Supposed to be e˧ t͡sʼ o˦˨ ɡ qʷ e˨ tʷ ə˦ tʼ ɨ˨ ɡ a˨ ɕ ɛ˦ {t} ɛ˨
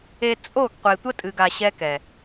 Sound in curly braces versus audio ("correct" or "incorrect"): incorrect